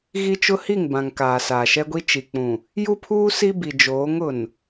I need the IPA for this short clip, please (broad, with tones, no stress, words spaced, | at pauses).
ɣi˦t͡ʃʊ˦hi˦˨ŋ bã˨ŋ kaː˨saː˨ʃɛ˦ɡʷi˦ t͡ʃi˨ k͡pũ˨ | ju˦pʰuː˦ si˦bi˨ d͡ʒoː˨˦ŋʊ˨n